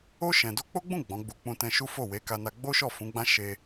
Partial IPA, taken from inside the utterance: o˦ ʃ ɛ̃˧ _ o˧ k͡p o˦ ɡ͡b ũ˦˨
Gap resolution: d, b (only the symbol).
d